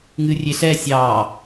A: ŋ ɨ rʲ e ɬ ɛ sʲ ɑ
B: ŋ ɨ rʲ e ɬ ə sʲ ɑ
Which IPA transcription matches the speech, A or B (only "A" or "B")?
A